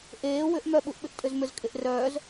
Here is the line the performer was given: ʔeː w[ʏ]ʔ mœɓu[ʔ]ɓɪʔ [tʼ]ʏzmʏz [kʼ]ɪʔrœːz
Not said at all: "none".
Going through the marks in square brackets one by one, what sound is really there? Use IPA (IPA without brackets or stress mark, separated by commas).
ʏ, ʔ, tʼ, kʼ